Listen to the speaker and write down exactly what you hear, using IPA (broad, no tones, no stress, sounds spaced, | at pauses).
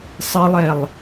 sˤ ɪ lˠ ɛ lˠ